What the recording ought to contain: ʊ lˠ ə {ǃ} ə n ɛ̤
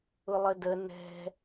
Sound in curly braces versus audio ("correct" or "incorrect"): incorrect